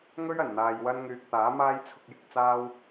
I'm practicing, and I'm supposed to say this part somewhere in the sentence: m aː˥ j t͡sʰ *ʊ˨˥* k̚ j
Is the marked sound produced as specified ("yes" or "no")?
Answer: no